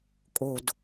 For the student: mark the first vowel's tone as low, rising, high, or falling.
low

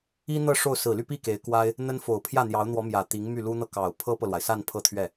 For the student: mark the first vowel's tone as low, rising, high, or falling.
high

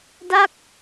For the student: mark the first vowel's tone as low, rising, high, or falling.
falling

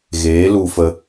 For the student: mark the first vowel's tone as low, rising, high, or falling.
rising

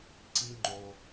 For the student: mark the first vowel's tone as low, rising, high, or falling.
low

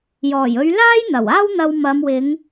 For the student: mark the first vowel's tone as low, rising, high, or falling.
low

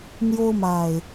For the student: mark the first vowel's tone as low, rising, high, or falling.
high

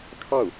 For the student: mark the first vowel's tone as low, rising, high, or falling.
falling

